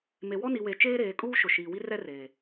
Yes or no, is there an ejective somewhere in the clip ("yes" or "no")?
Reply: yes